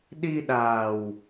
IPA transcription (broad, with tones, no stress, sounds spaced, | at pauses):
ɗ i˧ ɗ aː˨˩ w